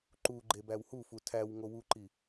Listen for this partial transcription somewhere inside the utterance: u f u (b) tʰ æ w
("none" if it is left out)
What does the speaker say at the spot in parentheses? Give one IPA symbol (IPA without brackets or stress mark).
none